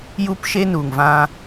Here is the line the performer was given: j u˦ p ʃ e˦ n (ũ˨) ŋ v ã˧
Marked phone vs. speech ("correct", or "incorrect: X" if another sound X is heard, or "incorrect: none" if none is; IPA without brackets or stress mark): incorrect: u˨